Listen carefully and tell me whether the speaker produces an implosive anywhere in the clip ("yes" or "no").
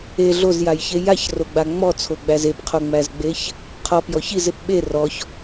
yes